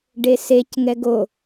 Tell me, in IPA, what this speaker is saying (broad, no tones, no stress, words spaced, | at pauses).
ɖesec ŋɛɡo